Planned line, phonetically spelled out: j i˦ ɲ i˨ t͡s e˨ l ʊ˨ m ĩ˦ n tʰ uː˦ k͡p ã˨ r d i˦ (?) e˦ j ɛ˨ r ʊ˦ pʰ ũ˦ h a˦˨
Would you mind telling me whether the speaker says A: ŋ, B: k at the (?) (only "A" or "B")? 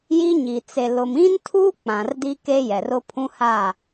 B